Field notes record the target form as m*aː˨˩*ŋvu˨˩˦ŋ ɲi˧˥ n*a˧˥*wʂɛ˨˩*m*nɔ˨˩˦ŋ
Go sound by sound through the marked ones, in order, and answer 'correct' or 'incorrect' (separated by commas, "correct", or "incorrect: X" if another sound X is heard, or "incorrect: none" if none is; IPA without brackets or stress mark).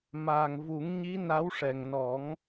correct, correct, incorrect: ŋ